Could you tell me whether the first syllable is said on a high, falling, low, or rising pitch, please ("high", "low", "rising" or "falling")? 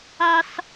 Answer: high